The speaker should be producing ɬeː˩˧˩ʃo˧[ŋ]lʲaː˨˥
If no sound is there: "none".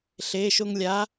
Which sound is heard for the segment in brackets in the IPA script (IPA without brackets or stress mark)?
ŋ